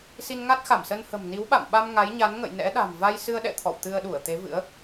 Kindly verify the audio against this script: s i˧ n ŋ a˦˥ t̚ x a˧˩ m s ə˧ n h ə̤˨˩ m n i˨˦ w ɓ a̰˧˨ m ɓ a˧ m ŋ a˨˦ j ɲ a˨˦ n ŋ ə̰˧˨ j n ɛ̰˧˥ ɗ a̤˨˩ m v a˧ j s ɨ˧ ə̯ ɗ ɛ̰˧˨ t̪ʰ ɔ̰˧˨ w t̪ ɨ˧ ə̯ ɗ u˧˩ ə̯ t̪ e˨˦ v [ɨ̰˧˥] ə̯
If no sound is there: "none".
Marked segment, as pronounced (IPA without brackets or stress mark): ɨ̰˧˥